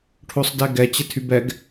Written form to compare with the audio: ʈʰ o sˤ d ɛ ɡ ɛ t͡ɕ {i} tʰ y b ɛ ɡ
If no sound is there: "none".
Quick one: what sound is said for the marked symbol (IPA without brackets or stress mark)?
ɪ